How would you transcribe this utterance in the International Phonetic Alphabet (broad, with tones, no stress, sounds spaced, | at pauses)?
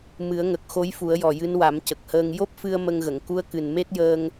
m ɨ˨˩˦ ə̯ ŋ ə˨˩ k̚ x o˧˥ j f u˨˩˦ ə̯ j ɔ˨˩ j ɨ˧˥ n w a˨˩˦ m c ə˨˩ k̚ h əː˧ ŋ j o˦˥ p̚ f ɨ˧ ə̯ m ə˧ ŋ ɣ ə˨˩˨ ŋ k u˧˥ ə̯ k ɨ˨˩ n m e˦˥ t̚ j əː˧ ŋ